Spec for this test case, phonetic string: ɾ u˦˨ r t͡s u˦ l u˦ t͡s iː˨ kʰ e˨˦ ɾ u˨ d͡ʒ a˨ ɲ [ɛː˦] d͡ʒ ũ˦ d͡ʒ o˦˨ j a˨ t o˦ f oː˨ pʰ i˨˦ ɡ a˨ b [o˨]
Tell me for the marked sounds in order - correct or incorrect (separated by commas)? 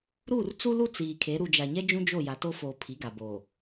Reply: incorrect, correct